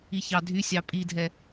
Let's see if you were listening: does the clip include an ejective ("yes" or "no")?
yes